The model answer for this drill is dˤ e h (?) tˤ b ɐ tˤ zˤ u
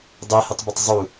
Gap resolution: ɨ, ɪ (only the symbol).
ɨ